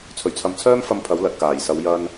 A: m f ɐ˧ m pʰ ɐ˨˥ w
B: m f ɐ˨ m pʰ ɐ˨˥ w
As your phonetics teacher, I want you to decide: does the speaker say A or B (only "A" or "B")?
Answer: A